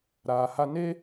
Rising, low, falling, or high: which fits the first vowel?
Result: low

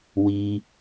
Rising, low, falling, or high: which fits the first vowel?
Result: low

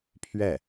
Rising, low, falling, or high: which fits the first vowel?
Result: falling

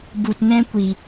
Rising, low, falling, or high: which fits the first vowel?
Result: low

